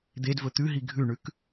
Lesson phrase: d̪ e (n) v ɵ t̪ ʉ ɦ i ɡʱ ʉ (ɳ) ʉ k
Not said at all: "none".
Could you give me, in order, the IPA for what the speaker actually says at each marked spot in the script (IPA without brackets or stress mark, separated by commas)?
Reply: d, ɳ